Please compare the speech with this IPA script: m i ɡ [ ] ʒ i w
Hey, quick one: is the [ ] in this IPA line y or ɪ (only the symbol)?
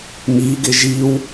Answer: ɪ